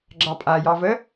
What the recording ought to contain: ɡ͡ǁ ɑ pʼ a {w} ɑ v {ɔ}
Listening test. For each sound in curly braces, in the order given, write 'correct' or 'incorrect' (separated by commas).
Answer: incorrect, incorrect